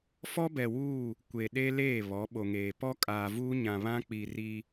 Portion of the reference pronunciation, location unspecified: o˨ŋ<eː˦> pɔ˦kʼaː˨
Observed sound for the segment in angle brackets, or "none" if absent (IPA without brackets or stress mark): eː˨